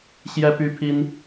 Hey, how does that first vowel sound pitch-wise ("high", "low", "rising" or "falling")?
high